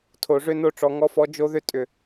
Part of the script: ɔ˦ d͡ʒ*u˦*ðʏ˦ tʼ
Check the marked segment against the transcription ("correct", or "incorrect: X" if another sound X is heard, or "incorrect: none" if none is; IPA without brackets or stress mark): incorrect: o˦